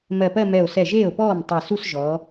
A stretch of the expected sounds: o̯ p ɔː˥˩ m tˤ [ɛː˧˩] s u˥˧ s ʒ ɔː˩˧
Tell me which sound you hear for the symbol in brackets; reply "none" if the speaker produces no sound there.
ɛ˧˩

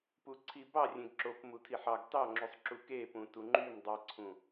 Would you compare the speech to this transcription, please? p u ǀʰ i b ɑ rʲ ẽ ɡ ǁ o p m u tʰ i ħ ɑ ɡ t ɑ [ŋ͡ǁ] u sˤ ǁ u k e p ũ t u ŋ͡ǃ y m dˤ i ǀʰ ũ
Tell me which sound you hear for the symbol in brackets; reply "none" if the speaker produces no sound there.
ŋ͡ǁ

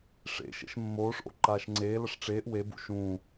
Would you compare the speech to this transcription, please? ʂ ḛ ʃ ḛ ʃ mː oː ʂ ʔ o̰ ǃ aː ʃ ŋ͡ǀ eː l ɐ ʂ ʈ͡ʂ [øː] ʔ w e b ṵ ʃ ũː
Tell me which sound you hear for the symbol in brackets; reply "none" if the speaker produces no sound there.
eː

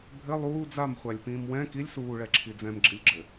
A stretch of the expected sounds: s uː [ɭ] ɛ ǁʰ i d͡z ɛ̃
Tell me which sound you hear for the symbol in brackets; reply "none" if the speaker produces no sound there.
ɭ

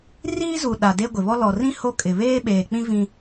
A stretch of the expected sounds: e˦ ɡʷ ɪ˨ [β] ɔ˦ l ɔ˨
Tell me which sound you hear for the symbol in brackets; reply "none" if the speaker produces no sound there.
β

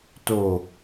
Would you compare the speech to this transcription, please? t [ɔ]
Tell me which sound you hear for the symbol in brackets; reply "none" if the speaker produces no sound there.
o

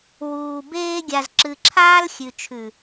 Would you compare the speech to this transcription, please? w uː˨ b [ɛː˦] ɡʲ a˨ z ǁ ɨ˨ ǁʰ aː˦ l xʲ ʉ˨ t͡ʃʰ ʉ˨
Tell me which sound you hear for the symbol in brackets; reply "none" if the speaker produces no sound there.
eː˦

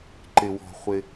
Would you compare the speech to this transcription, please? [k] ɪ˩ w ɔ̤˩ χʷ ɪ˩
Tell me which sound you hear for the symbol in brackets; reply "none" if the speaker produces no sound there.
ǃ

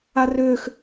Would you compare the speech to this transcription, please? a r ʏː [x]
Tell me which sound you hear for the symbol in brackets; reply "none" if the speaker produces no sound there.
x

